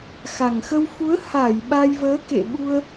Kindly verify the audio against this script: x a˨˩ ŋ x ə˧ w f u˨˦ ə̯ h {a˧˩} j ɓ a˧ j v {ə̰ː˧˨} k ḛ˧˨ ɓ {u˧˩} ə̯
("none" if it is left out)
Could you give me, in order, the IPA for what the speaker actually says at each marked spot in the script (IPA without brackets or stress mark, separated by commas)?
a˧˩, əː˨˦, u˧